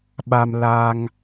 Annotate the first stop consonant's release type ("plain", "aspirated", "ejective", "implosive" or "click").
implosive